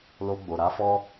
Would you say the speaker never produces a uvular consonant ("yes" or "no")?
yes